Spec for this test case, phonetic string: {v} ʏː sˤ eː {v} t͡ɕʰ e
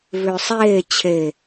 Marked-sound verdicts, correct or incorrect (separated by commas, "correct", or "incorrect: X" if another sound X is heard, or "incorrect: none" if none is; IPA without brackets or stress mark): correct, incorrect: none